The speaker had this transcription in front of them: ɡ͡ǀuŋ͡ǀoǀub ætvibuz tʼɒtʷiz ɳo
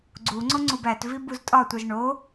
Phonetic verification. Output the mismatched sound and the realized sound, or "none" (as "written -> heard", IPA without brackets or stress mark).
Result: ǀ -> ŋ͡ǀ